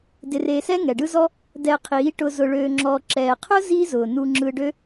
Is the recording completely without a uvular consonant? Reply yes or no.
no